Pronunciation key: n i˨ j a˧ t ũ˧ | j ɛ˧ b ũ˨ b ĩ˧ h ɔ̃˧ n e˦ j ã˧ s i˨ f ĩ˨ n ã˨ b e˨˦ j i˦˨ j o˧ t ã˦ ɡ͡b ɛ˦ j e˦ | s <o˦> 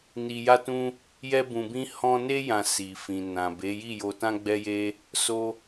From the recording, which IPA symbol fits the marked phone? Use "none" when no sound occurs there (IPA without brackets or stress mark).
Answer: o˧